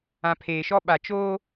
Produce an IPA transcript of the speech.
ã˨ pʰ eː˨ ʃ ɔ˦ ɓ a˨ t͡ʃ oː˦

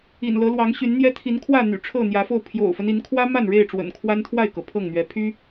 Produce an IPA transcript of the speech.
ḭ˨˩ n l ɤ˨˦ l w ɑ˨˦ ŋ ɕ y˨˦ n n̪ j ɛ˦ t̪ʰ i˨˦ n kʰ w ä˥˨ n̪ y̰˨˩ ʈ͡ʂʰ ɤ˥˨ n̪ j ä˨˦ f o˥˨ ʊ̯ pʰ j o̰˨˩ ʊ̯ f ə˦ n i˨˦ n kʰ w ä˦ m a˥˨ n ɻ e˥˨ ɪ̯ ʈ͡ʂ w ə̰˨˩ n kʰ w a˦ n t̪ʰ w a˥˨ ɪ̯ k ɤ˩ pʰ ɤ˥˨ ŋ n̪ ɥ ɛ˨˦ pʰ y˦

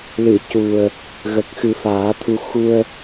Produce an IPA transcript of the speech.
l ɨ˨˩˨ c u˨˩ ə̯ | ɣ ə˨˩ k̚ x ɨ˨˩˦ f aː˨˩˦ t̪ʰ u˧ x u˧ ə̯

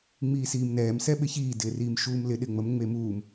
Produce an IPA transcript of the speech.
ŋ͡m iː s iː m n ɛː m s ɛ ɓ ɪ ç iː d ɪː r iː m ʃ uː m l ɪ ɗ ɪ ŋ͡m ə m ŋ͡m e m uː m

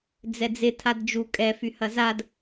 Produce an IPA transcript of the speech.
d͡z ɛ d͡z ɪ tʰ a d d͡ʒ u kʼ ɛ f y h ɐ z a d

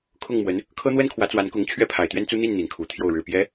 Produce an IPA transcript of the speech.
kʰ ʊ˥˩ ŋ m w ə˧˥ n | kʰ ɤ˥ n̪ w ə˥ n kʰ w ä˧˥ t͡s w a˧˥ n k ʊ˧˥ ŋ t͡ɕʰ ɥ ɛ˥˩ pʰ a˨˩ ɪ̯ t̪ ɥ ɛ˥ n t͡s u˥ n̪ i˥˩ n n̪ i˧˥ n kʰ u˨˩ t̪ʰ j o˥˩ ʊ̯ ɻ ɻ̩˨˩ p j ɛ˧˥

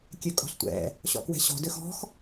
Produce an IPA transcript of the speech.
kʲ ø kʼ ɔ̤ ɬ tʷ ɛ̰ | ɕ ɔ̰ k w ɛ̤ ɕ ɔ̤ d ø x ɔ̤ x

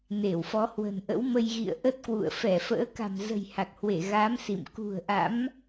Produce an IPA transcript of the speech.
n e˧˩ w f ɔ˨˦ h w ə̤˨˩ n ʔ ə̰˧˥ w m ə˧ j ɣ ḭ˧˨ ə̯ ʔ ə˦˥ t̚ k w ṵ˧˨ ə̯ f ɛ˧˩ f ə̰ː˧˥ k a̤˨˩ m z ə̤˨˩ j h a˨˩ k̚ h w e˧˩ ɣ aː˨˦ m s ḭ˧˨ m k ṳ˨˩ ə̯ ʔ a̰˧˥ m

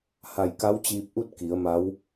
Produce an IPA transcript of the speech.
h a˧˩ j k a˧˥ w t͡ɕ iː˧ p̚ ʔ u˥˨ t̚ k i˩˧ ə̯ m a˧˥ w

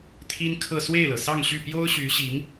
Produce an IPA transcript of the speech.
t̪ʰ i˥ n kʰ ɤ˥˧ s w e˥˩ ɪ̯ l ɤ˩ s ɑ˥˧ ŋ ɕ y˥˩ p j o˥ ʊ̯ ɕ y˧˥ ɕ i˧˥ ŋ

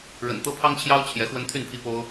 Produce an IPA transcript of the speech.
ɻ ə̰˨˩ n t̪ ɤ˦ pʰ ɑ˦ ŋ t͡ɕʰ j ɑ˦ ʊ̯ t͡ɕʰ j ɛ˨˦ x w ə˦ n t̪ʰ y˥˨ n pʰ i˦ p o˦ ʊ̯

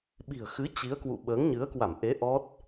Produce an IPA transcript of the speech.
ɓ i̤˨˩ ə̯ x ɨ˨˦ t͡ɕ i˨˦ ə̯ k w ṵ˧˨ ɓ əː˨˦ ŋ ɲ ɨ˨˦ ə̯ k w a˧˩ m ʔ e˨˦ ʔ ɔ˦˥ t̚

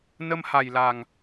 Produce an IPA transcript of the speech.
n ə˧ m h a˨˩ j l a˨˩ ŋ

